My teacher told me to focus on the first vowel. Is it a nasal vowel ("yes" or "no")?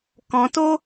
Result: yes